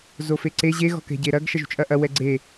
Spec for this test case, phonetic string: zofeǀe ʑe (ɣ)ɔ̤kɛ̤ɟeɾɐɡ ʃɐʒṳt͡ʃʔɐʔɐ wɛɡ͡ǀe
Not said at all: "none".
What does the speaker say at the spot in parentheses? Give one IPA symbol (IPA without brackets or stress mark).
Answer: ɣ